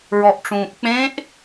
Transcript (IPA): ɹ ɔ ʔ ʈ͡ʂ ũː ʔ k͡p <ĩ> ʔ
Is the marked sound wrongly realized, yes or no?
yes